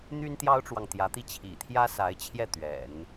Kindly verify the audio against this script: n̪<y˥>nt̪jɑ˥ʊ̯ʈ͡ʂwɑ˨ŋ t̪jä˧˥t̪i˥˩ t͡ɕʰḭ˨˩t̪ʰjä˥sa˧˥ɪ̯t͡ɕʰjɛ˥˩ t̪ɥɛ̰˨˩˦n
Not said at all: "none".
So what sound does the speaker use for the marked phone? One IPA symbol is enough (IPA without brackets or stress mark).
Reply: y˥